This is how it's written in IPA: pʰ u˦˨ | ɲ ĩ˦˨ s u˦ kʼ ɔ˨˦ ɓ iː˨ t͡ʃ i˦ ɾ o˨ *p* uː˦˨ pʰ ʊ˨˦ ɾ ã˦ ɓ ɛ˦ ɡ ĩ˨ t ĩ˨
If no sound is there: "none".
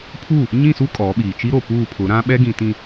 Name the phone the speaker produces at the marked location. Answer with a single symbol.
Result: p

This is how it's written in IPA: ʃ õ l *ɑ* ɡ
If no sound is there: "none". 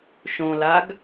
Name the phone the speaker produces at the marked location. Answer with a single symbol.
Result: a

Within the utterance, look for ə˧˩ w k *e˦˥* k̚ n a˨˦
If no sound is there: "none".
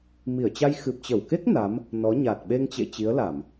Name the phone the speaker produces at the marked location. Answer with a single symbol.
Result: e˦˥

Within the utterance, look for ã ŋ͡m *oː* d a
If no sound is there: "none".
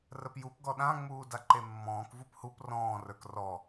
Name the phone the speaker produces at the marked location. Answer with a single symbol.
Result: uː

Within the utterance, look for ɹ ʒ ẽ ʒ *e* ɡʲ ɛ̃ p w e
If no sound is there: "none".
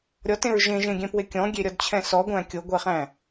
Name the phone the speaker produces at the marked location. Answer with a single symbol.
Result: ẽ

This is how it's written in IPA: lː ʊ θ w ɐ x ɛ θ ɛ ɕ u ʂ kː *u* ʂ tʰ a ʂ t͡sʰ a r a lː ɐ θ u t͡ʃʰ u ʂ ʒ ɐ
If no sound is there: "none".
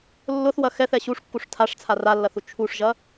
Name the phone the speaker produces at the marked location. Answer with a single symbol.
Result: u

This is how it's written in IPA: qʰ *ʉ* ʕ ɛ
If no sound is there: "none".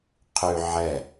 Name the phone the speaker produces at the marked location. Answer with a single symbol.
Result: ʉ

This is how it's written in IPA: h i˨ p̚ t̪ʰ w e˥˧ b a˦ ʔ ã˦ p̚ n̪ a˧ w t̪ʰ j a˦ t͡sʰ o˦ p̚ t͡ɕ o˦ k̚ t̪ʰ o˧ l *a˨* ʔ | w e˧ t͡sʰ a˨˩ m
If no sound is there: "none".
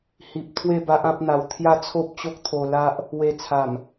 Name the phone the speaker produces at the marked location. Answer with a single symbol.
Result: a˦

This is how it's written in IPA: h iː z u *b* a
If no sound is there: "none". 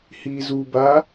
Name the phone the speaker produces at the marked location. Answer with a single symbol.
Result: b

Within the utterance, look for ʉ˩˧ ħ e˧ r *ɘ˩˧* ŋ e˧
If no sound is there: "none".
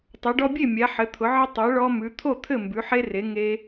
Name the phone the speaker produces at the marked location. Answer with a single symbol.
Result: e˩˧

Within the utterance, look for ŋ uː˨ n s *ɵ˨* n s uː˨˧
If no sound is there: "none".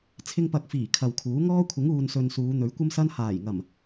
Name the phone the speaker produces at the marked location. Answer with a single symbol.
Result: ɵ˨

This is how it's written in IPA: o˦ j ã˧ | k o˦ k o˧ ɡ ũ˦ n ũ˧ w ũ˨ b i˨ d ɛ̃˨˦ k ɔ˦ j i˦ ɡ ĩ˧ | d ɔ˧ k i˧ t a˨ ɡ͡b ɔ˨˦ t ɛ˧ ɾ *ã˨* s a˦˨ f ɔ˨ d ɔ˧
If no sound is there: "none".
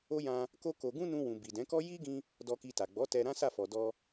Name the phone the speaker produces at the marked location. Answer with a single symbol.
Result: ã˦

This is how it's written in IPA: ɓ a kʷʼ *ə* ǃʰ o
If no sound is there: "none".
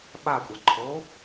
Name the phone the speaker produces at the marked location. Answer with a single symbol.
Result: a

